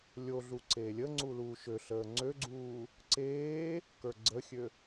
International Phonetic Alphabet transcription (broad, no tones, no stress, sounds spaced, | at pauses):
lʲ o ɮ u ǀ eː lʲ ə ŋ͡ǀ u l uː ʃ ø ɬ əː ŋ͡ǀ ø ɡ͡ǀ uː | ǀ eː | k ə˞ ɡ͡ǀ ə xʲ ø